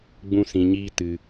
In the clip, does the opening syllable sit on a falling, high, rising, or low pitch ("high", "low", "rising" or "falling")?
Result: high